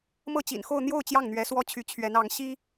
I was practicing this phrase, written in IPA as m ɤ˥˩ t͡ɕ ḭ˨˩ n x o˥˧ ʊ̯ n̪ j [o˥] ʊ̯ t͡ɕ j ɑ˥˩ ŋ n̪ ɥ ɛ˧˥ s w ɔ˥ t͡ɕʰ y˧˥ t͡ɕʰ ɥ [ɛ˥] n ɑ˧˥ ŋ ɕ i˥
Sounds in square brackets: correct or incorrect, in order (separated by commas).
incorrect, incorrect